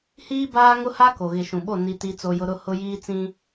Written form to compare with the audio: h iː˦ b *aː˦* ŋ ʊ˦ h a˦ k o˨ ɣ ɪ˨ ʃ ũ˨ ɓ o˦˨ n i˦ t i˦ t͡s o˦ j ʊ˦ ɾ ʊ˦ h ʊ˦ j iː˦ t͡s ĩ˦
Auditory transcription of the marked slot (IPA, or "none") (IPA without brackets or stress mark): aː˦